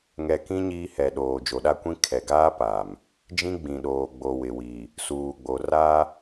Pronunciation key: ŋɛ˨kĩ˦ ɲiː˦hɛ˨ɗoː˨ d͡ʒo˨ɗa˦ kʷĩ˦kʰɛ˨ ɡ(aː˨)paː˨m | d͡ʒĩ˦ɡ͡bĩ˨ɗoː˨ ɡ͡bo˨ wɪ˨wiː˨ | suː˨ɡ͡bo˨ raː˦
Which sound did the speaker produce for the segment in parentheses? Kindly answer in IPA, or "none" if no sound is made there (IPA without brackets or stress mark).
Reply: aː˦